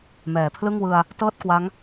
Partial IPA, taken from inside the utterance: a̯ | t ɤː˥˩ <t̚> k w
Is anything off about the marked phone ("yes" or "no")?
no